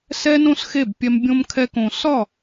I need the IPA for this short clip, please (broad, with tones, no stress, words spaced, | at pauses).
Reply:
sɛ˦nõ˦sxe˦˨b pʲɛ˧mbʲõ˦mkʰɛ˦kõ˧ sɒ˦˨